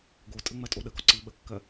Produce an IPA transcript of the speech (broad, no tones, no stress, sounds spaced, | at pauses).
ɡ o tʼ ə ŋ͡m ɜ tʼ o ɗ ə ɡ ɒ ǀ i ɓ ə kː ɜ